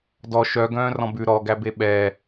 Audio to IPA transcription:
d ɔ ʃ œ ɡ œ̃ː r ɔ̃ b ʉ ɾ ɔ ɡ æ b e ɓ ɛ

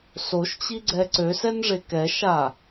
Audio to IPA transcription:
s o ʃ t͡ɕ i ɡ͡ǀ ɛ ǀ ø s ɛ n ʐ e k ɛ ʃ a

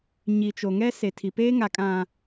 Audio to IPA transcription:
ɲ i˨ t͡ʃ o˨ ŋ ɛ˦ s e˨ tʰ i˨ p eː˦ ŋ a˨ kʼ ã˨

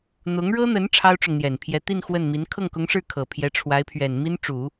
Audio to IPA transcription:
n̪ ʊ˧˥ ŋ ɻ ɤ˥ n̪ ə˧˥ n ʈ͡ʂʰ ɑ˥ ʊ̯ ʈ͡ʂ ʊ˨ ŋ n̪ j ɛ˨˩ n pʰ j ɛ˧˥ t̪ i˥˧ n x w ə˥˩ n m i˧˥ n kʰ ɤ˥˩ ŋ k ʊ˧˥ ŋ ʂ ɻ̩˥˩ kʰ ɤ˨˩ pʰ j ɛ˧˥ ʈ͡ʂʰ w a˧˥ ɪ̯ pʰ ɥ ɛ˨˩ n m i˥ n ʈ͡ʂ u˨˩˦

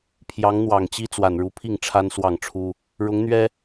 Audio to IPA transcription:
pʰ j ɑ˧˥ ŋ n̪ w ɑ˨˩ ŋ t͡ɕ i˥ t͡s w a˨˩ n ɻ u˧˥ pʰ i˥˩ ŋ ʈ͡ʂʰ a˥ n s w ɑ˥˩ ŋ ʈ͡ʂʰ u˥ | ɻ ʊ˧˥ ŋ n̪ ɥ ɛ˥

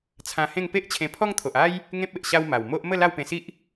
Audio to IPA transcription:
t͡sʰ ã˧ h ẽ˥˧ ŋ p e˦ ʔ t͡ɕʰ ẽ˧ pʰ ɔ˦ ŋ t̪ʰ o˨ ʔ a˦ j | ŋ ẽ˦ p̚ e˨ ʔ ɕ a˦ w m a˨˩ w m o˦ ʔ m ə˥˧ l a˥˧ w p ẽ˧ s i˦ ʔ

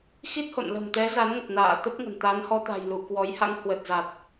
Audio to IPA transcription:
x i˦˥ t̚ h o̰˧˨ n l ə̤˨˩ m t̪ ɛ˨˦ z a˨˦ n ŋ ə˨˩ p̚ n a̰ː˧˨ t̪ ə˦˥ p̚ ŋ ə̤˨˩ n t̪ a˨˦ n h ɔ˧ t̪ a̤˨˩ j l u˧˩ k w ɔ˨˦ j h a̰˧˥ ŋ h w ə˨˩ t̚ z a˨˩ t̚

